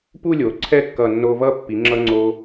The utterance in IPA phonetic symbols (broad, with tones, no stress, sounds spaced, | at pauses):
p u˥˧ lʲ o˩˧ ǀʰ ɛ˥˧ kː ʌ˧˩ nː o˧ v ʌ˥˧ pː i˩˧ ŋ͡ǁ ʌ˧ ŋ͡ǀ o˧